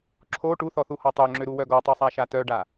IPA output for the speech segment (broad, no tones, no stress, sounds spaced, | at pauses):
ǁʰ o ʈ u θ ɔ θ u h ɔ tˤ ø ŋ͡ǁ ø ɾ u w œ ɡ ɔ tˤ y sˤ a ʃ a t œ ɖ a